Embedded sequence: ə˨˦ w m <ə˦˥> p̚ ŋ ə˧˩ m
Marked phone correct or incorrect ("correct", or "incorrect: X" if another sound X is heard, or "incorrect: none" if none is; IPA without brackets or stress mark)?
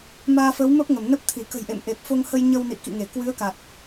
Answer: correct